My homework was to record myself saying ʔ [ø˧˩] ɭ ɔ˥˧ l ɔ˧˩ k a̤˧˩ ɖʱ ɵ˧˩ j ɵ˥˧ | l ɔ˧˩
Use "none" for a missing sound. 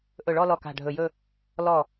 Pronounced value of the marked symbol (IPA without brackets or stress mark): ɵ˧˩